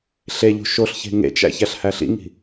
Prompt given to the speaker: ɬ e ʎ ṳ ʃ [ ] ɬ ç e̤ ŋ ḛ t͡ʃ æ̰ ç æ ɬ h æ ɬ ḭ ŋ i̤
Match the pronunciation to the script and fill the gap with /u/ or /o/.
o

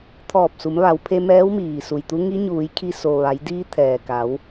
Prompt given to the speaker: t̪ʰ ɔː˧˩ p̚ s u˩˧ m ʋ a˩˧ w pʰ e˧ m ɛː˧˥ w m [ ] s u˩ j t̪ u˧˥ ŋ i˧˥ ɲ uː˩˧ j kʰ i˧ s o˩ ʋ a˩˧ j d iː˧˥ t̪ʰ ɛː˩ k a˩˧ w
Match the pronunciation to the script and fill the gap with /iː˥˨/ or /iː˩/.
iː˩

